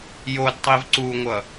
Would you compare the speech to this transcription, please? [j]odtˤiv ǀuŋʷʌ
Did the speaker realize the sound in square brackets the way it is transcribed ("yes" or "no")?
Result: yes